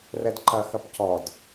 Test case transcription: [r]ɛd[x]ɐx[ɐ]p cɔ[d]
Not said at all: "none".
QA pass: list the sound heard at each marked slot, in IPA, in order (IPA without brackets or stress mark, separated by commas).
r, ǃ, ɐ, d